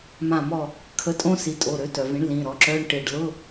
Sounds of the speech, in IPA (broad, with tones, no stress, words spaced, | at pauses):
mã˧˩mɔ˧˩ | kʰə˧˥˧tʼõ˥ si˩˥tʼo˩˧˩ɾø˩˥ tœ˩vĩ˩˥ɳ lĩ˩˧˩ɾɔ˩˥ǁœ˧˥˧ɳ ʈɪ˧˩ɖ lʊ˧˥˧